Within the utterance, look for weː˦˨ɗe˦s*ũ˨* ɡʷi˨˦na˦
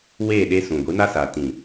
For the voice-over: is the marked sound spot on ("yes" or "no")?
yes